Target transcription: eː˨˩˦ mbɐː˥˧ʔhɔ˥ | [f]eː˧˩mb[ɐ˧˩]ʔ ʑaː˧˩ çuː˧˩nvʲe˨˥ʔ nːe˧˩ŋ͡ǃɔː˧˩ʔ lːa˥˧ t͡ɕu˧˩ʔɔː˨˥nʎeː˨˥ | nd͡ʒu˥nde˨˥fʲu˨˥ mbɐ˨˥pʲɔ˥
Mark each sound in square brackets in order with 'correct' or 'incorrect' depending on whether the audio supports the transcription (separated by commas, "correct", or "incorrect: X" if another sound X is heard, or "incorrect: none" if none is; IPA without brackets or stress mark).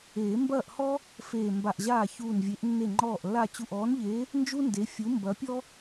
correct, incorrect: a˧˩